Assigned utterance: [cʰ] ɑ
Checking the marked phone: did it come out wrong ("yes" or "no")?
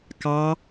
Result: yes